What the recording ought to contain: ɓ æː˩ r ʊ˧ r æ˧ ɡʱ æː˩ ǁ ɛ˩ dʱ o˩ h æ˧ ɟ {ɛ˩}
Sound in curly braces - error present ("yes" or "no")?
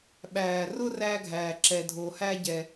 no